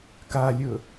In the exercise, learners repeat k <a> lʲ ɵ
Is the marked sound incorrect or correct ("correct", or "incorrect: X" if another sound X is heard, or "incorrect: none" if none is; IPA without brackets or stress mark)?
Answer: correct